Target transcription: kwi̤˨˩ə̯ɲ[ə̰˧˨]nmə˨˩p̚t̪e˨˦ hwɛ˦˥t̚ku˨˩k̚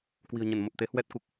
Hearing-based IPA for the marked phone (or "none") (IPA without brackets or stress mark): ə˧˩